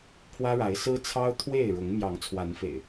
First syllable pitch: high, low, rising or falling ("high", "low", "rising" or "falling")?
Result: high